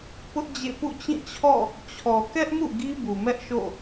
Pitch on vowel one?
high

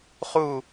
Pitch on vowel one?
falling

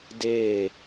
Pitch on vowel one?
falling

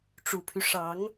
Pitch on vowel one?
low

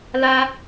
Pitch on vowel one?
high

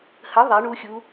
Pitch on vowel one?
rising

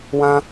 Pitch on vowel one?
high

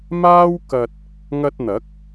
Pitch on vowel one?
high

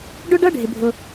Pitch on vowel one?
high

